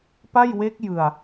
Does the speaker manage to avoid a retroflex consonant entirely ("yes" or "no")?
yes